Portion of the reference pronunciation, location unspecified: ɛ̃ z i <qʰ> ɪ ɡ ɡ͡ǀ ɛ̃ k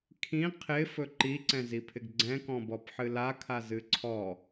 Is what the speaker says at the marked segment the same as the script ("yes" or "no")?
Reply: no